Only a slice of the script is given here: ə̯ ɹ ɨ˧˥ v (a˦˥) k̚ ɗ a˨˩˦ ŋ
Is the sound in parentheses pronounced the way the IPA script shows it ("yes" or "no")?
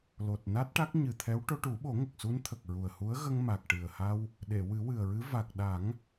no